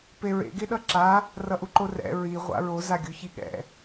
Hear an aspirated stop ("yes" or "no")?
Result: no